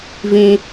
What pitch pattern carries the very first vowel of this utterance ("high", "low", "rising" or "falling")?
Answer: high